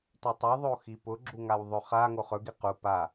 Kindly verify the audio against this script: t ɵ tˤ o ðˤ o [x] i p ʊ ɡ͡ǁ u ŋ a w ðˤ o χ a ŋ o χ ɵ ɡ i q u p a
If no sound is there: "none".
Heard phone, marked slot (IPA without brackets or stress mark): x